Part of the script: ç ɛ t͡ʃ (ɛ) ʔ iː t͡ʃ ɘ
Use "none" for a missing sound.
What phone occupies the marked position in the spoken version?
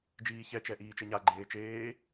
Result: ɛ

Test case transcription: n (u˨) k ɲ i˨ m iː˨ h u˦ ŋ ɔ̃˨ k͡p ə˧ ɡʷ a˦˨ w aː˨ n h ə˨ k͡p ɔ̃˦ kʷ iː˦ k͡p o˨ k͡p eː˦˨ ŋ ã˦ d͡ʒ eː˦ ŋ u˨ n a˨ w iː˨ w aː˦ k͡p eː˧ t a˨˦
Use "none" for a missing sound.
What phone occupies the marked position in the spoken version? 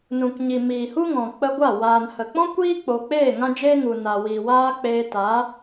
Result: ũ˨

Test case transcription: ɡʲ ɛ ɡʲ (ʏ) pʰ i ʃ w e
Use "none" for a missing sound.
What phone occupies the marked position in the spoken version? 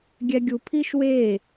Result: u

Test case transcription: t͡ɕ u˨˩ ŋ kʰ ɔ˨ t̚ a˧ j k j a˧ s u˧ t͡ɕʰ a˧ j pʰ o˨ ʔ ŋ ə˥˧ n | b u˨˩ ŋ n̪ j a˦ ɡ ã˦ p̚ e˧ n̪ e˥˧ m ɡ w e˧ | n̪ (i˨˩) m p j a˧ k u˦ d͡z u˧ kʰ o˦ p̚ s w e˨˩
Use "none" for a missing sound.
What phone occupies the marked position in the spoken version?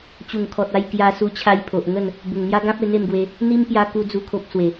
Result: i˦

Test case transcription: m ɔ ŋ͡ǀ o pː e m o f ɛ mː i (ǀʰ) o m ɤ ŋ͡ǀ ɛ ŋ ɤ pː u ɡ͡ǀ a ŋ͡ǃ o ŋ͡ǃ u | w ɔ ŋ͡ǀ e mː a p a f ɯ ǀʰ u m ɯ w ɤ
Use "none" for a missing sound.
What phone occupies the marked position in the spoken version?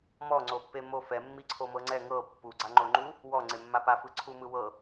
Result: ǀʰ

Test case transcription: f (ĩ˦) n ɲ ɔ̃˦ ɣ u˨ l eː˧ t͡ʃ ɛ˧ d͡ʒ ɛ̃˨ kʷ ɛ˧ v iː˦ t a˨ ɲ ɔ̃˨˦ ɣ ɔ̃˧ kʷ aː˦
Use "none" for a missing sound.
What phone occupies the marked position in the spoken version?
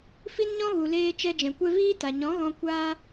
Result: i˦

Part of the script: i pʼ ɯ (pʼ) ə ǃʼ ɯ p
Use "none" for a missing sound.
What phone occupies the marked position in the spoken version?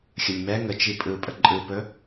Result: pʼ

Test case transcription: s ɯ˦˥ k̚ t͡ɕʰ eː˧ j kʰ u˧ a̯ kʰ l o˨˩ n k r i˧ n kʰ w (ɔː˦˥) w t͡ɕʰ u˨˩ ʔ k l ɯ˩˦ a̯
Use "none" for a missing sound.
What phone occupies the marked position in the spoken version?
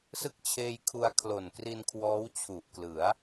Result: ɔː˦˥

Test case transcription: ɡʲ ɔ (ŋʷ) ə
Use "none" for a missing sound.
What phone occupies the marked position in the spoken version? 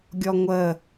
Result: ŋʷ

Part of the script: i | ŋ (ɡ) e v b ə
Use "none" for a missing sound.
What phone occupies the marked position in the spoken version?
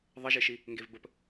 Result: ɡ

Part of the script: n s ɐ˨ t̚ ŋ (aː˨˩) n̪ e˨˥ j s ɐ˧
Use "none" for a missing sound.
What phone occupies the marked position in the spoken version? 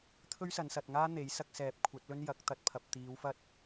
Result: aː˥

